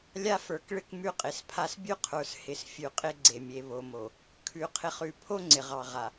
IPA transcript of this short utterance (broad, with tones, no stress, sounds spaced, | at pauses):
lʲ a˦ f ə˞˨ k ɭ ɪ˦ k m ʉ˦ qʼ ɪ˨˦ s pʰ a˦ s bʲ ʉ˦ qʰ ə˞˨ s h ɪ˨ s fʲ ʉ˨ qʼ ɪ˦ ɡ͡ǀ e˨ mʲ e˨ β o˨ m o˨ | kʰ ʉ˨ qʰ ɪ˨ χ ʉ˨ pʰ o˦ ŋ͡ǀ ɪ˨ ʁ ɑ˨ ʁ a˨